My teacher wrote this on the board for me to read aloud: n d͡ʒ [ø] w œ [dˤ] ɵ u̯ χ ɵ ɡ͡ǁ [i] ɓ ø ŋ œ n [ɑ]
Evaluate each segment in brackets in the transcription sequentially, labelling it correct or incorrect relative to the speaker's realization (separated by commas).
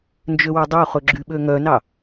correct, correct, incorrect, correct